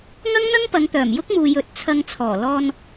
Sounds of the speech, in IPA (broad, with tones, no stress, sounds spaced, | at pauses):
ŋ ɐ˥ ŋ n̪ ɐ˥ ŋ p ɐ˨˧ ŋ t̪ œː˨˩ m j ʊ˥ k̚ m uː˨ j ɵ˨˥ t̚ t͡sʰ ɐ˧ ŋ t͡sʰ ɔː˨˩ l ɔː˧ n